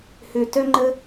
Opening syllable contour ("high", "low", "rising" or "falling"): low